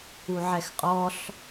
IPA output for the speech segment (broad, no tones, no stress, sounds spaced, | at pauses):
u ʕ ɛ x qʼ ɔ ɬ